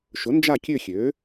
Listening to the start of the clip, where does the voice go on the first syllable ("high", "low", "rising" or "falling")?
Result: rising